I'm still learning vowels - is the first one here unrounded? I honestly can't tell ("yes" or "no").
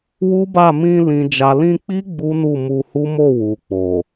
no